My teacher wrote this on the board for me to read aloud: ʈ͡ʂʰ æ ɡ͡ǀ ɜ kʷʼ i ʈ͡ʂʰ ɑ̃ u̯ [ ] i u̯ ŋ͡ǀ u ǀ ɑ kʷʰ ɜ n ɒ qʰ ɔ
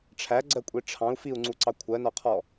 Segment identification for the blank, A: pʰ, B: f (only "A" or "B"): B